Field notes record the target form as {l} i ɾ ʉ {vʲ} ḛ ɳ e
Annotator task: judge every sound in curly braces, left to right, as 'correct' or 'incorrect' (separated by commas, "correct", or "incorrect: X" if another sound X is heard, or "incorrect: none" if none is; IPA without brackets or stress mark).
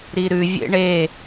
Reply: incorrect: ɾ, correct